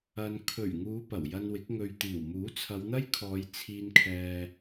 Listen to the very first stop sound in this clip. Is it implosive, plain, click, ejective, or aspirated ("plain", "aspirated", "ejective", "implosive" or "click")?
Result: aspirated